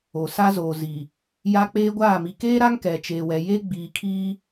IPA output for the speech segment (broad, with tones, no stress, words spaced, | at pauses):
o˨sa˦zoː˨zi˨ | ja˦k͡peː˦ɡʷaː˦˨ mi˨keː˦ɾa˦ŋ kɛ˨t͡ʃeː˨wɛ˨ je˦ɡ͡biː˨kʰiː˦